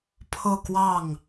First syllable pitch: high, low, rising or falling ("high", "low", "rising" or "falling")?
falling